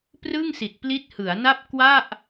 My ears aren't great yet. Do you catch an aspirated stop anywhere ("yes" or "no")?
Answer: no